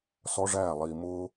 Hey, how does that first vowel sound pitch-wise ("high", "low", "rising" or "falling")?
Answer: high